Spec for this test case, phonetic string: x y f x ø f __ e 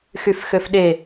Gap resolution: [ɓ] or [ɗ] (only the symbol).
ɗ